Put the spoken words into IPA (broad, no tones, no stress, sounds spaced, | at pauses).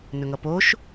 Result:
n ɵ ŋ ʌ p oː ʃ